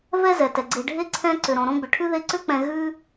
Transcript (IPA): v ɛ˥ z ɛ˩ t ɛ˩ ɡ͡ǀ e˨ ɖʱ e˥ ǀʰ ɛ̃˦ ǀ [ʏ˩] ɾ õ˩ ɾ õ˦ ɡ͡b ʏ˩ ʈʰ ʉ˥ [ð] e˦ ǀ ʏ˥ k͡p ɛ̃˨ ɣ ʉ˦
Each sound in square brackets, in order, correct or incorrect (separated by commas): correct, correct